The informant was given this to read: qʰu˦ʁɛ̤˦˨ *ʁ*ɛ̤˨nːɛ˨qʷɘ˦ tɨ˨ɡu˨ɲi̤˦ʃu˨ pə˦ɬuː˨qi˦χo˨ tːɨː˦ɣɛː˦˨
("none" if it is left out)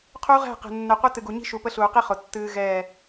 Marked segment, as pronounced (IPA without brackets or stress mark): q